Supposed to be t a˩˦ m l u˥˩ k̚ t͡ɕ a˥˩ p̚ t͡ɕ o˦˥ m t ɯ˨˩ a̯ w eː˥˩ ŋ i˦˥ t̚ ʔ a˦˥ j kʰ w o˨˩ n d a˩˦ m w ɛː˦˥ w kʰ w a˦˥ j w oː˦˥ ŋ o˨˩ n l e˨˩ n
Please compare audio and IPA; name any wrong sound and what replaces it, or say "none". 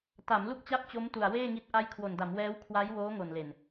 ɯ˨˩ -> u˨˩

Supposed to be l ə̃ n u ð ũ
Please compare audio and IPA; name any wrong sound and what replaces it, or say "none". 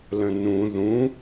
u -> ũ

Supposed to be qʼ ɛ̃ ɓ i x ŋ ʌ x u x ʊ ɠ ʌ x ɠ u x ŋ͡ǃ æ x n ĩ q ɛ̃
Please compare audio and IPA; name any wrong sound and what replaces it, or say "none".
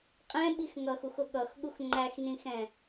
q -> x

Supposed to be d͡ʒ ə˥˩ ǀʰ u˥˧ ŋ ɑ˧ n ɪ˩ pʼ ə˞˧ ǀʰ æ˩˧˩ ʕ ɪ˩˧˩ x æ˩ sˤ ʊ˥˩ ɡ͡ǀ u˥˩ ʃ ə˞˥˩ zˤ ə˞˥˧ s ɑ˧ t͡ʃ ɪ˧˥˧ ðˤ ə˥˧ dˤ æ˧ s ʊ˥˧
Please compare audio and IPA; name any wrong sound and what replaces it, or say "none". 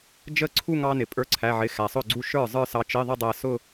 none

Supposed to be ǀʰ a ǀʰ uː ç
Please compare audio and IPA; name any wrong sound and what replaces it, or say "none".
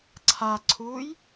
ç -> j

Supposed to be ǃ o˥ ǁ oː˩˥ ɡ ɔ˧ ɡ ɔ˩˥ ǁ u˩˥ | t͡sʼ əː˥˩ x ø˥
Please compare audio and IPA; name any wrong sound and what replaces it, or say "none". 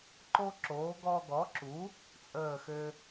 none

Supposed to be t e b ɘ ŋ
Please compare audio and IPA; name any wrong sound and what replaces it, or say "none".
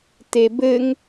none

